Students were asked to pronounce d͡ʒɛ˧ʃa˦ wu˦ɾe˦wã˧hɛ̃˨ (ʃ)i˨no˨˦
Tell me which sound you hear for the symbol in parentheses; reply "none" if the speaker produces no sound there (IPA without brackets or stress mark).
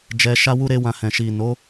ʃ